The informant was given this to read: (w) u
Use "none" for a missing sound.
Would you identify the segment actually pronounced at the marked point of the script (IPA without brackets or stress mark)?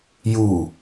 j